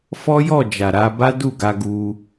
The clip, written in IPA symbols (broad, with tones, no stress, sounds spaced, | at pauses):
f ɔ˦ j ɔ˦˨ d͡ʒ a˨ ɾ a˧ b a˦ d u˦˨ ɡ a˧ ɡ u˧